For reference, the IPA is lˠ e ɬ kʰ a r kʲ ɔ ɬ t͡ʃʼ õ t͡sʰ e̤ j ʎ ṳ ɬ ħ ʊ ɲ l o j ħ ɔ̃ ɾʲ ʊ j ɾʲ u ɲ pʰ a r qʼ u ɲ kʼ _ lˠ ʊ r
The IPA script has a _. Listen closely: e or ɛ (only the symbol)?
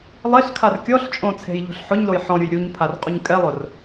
ɛ